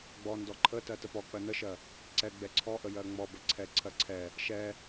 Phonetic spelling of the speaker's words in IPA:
ɡ͡b ɔ n d ɔ ǃʰ ə t ɜ t ə p ɔ k͡p ɜ n ə ʃ ɜ | ǀ ɛ ɡ͡b ɛ ǀʰ ɔ ʔ ə j ɜ ŋ͡m ɔ b ə ǀʰ ɛ ǀʰ ɜ ǀʰ ɛ | ʃ ɛ

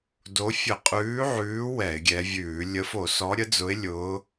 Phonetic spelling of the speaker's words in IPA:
d o˨˦ fʲ ə˧˩˧ qʼ ʉː˨˦ ʕ ʉː˨˦ w ɛ˧˩˧ ɪ̯ ɡʲ ɛ˨˦ vʲ ʉː˧˩˧ lʲ ə˨˦ f o˧˩˧ s ɔ˨˦ ɾʲ ə˨˦ d͡z ʊ˨˦ ɪ̯ lʲ ʊː˨˦

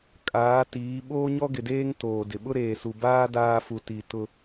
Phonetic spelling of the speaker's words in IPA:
kʼ aː˨˦ t iː˨˦ ɓ oː˦ ɲ ɔ˦ ɡ ɪ˨ d eː˦ ŋ t oː˨ d ɪ˨ ɓ ʊ˦ ɾ eː˨ s u˨ b aː˦ d aː˦ f u˨ t i˨ t ʊ˦

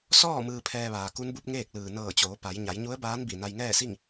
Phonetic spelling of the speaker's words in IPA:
s ɔː˥˨ m ɯː˧ pʰ ɛː˧ ʋ aː˩ k u˧˥ n b u˧˥ p̚ ŋ eː˥˨ k̚ l ɯː˩ n ɤː˧˩ t͡ɕ oː˩˧ p a˩˧ j ɲ a˩˧ j ɲ u˧˥ ə̯ b aː˧˥ n b i˧˩ n a˧ j ŋ ɛː˥˨ s i˥˨ ŋ

